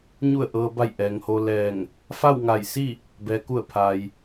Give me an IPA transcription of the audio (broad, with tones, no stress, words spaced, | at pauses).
ɲu˧˩ə̯ʔɤː˩ba˧˩j ʔɛː˩ŋho˧lɛː˧˩ŋ | fa˥˨wŋa˧˩jsi˥˨ | bɛː˩ku˧˩ə̯ pʰa˩j